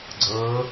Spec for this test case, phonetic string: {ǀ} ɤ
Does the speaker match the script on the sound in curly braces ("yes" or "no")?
no